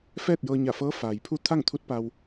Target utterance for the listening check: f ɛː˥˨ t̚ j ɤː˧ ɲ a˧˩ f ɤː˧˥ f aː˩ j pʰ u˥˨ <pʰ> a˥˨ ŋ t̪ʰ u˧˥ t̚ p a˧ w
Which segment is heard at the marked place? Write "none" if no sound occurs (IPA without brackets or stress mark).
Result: t̪ʰ